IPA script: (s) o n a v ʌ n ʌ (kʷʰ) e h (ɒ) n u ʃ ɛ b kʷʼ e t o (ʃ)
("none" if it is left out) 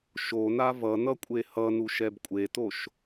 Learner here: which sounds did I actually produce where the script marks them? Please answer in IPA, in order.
ʃ, kʷʼ, ʌ, ʃ

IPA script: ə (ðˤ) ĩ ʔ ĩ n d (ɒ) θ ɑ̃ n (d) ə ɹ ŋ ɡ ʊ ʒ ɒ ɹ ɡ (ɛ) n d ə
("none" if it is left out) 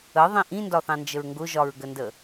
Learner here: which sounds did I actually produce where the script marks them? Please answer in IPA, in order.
ðˤ, ɒ, d͡ʒ, ə

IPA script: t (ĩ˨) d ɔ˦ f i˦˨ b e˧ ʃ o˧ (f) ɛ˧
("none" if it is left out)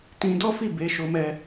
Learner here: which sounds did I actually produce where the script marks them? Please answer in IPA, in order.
ĩ˧, m

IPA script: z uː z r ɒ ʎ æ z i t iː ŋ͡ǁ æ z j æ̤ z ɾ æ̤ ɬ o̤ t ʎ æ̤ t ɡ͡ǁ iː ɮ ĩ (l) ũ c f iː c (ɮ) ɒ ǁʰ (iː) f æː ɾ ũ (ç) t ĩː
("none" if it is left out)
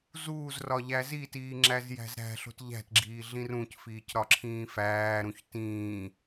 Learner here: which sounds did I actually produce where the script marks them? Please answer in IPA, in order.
r, ɾ, ĩː, ç

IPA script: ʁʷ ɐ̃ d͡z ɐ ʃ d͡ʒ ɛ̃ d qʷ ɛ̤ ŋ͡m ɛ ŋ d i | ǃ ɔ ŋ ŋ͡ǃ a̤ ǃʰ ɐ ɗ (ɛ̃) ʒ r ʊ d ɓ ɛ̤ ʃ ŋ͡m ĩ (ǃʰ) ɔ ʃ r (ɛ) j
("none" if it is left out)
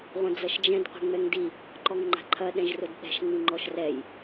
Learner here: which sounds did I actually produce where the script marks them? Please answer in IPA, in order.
ɛ̃, ŋ͡ǃ, ɛ

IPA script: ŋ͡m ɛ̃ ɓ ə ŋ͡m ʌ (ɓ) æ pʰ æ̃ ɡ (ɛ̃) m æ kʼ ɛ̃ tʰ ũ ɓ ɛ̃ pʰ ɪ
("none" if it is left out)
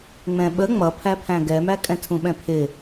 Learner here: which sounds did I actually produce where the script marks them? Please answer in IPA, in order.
pʰ, ɛ

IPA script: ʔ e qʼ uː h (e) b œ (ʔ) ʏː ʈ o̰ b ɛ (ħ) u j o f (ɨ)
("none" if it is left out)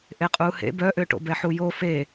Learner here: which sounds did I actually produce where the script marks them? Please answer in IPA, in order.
ḛ, ʔ, ħ, e

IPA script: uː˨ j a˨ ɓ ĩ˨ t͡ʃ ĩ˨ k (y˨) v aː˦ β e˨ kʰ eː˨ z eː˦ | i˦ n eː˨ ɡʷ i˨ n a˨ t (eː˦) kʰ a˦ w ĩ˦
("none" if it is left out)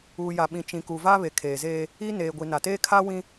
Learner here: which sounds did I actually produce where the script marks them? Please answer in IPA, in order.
u˨, eː˦

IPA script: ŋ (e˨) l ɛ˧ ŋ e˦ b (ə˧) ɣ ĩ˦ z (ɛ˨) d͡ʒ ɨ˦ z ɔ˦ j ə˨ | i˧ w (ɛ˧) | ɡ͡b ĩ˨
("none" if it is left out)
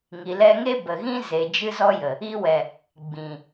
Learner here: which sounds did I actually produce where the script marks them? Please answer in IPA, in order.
i˨, ə˨, e˨, ɛ˨

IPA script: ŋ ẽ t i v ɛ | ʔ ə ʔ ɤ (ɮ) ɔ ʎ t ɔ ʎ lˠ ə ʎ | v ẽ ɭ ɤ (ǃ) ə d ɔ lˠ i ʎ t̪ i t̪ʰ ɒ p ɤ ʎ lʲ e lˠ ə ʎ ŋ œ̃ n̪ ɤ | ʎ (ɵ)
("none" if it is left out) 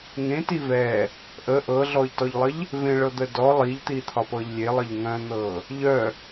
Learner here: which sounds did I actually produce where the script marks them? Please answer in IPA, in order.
ɮ, d̪, œ

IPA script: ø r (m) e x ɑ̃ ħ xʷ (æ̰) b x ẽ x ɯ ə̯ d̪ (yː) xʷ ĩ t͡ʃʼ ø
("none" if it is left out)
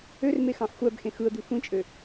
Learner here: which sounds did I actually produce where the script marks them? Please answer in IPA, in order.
m, æ, y

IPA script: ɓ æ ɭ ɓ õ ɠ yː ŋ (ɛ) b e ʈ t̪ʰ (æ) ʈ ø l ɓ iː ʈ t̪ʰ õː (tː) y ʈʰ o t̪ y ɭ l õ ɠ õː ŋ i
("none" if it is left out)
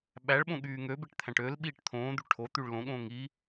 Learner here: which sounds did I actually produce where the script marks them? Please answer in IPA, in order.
ø, æ̃, d̪

